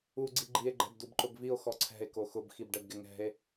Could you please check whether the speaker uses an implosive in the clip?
no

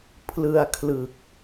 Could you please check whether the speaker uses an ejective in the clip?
no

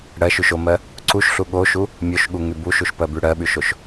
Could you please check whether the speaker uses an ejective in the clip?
no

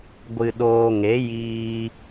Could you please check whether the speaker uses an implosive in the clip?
yes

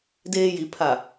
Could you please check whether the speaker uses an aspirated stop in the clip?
yes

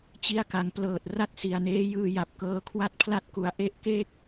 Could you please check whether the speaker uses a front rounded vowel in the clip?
no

